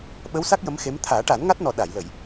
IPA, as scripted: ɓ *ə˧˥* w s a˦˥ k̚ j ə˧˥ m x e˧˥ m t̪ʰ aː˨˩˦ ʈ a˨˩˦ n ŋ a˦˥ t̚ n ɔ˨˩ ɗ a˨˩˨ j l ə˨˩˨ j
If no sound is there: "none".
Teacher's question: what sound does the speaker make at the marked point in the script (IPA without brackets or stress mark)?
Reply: ə˧˥